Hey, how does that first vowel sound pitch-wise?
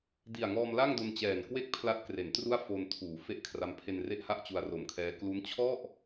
low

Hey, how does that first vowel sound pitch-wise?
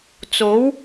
rising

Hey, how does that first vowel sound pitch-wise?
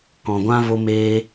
low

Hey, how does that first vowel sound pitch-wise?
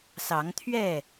rising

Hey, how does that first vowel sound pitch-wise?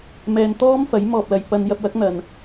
low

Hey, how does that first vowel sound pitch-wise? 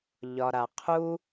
low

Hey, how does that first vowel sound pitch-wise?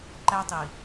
high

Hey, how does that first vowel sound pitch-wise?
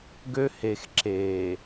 high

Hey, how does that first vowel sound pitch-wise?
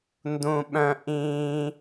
high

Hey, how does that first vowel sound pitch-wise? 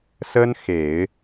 high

